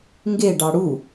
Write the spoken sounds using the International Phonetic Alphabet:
ŋ ɡ e ɖ ɑ ɽ u

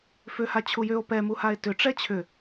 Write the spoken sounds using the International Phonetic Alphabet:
f ʏ h a t͡ɕʰ u j ʏ o̯ p ɛ m u h a e̯ t ʏ ʈ͡ʂ ɛ t͡ɕʰ ʏ

